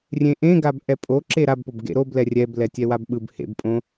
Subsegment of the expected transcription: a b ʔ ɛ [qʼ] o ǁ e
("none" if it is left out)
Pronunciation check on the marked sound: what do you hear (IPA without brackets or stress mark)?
pʼ